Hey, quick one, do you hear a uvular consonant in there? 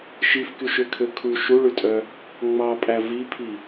no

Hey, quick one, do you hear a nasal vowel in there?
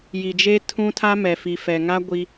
yes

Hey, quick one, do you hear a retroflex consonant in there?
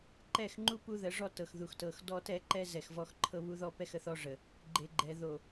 yes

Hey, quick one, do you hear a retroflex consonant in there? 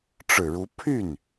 yes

